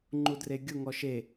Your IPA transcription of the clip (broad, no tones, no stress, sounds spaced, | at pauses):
ŋ͡ǃ u d r e ɡʲ ʊ ŋ ɔ ʃ e